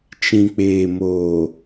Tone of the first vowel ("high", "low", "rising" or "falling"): low